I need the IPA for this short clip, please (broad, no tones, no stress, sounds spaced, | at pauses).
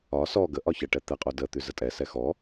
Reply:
ɒ s ɔ ɡ ə ʔ ɒ ç ə ʈ ɛ t̪ ɛ qʼ o d ə t̪ y z ə tʼ ɛ s ɛ x ɔ